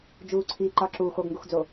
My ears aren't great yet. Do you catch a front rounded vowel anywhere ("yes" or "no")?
no